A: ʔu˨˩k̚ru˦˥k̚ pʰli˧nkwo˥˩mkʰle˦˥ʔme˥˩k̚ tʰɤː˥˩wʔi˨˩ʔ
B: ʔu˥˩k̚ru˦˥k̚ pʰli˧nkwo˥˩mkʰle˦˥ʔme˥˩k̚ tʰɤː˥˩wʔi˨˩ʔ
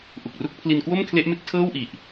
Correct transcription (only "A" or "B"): A